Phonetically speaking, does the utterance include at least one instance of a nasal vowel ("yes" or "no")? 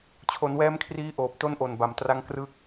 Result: no